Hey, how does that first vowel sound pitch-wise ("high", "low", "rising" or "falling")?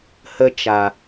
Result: high